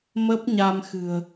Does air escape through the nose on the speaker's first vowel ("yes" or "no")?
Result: no